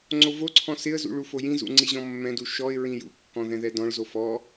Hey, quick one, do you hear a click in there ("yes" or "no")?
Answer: yes